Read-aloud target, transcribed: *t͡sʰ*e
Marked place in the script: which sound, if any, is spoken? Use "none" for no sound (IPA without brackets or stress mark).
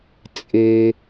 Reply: t͡sʼ